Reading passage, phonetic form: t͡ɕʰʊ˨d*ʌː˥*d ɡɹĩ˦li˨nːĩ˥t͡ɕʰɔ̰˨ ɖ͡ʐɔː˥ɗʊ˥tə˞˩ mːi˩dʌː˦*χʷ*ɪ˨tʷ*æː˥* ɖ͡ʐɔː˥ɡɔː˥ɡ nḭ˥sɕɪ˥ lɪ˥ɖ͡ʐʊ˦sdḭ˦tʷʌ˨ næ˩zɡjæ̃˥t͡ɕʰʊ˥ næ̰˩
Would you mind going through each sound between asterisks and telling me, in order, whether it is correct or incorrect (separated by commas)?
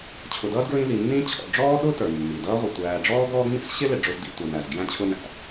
correct, incorrect, incorrect